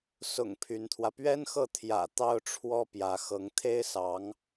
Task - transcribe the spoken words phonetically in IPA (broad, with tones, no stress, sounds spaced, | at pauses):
s ʊ̰˨˩ ŋ pʰ y˧˥ n t̪ʰ w ä˧ p ɥ ɛ˥ n x ɤ˥˩ t̪ʰ j ä̰˨˩ t̪ ɑ˥ ʊ̯ ʈ͡ʂʰ w ɔ˥ p j ä˧˥ x ɤ˧˥ ŋ t̪ʰ e˥ ɪ̯ s ɑ˧˥ ŋ